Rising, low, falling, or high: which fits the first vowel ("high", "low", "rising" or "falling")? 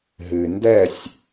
low